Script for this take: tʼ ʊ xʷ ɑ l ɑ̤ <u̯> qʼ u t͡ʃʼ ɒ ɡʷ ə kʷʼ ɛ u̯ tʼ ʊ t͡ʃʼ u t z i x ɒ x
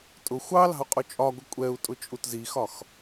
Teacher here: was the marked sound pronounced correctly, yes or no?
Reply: yes